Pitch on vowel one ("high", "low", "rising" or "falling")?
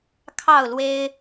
falling